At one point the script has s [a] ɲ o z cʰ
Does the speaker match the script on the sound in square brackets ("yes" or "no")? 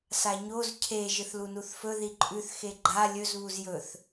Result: yes